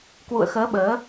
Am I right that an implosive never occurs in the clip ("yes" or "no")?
no